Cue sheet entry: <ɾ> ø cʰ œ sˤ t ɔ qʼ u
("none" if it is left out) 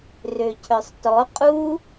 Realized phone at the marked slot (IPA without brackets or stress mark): r